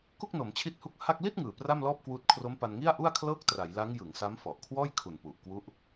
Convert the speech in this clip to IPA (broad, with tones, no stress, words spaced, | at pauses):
ku˥˩k̚no˩˦mt͡ɕʰi˦˥t̚hu˦˥k̚ ha˥˩k̚ li˥˩t̚ ŋɯː˨˩pra˥˩mlɔː˥˩p̚kwuː˦˥t̚ kʰro˦˥mpa˧nŋi˥˩a̯ʔu˥˩a̯ kʰlɤː˥˩k̚tra˩˦jla˦˥ŋ jɯ˩˦ŋsa˦˥mfɔ˨˩ʔkʰwɔː˥˩j kʰu˨˩npu˨˩ʔkwu˦˥ʔ